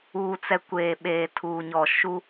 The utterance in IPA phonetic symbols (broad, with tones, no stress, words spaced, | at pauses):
uː˨t͡sɛ˨ kʷeː˨ ɓeː˨tʰuː˨ ɲɔ˨ ʃu˦